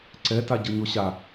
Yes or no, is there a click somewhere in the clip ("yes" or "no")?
yes